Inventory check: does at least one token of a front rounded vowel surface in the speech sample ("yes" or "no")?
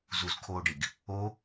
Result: no